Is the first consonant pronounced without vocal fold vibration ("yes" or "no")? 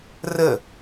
no